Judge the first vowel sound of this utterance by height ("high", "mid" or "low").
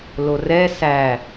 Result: mid